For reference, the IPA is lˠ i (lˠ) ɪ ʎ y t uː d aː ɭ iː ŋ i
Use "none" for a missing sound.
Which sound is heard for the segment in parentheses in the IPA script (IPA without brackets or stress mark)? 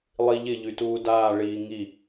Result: ʎ